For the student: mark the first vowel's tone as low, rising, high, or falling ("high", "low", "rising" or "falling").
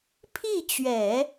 falling